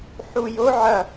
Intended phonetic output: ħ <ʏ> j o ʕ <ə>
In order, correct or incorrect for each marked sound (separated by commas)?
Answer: incorrect, incorrect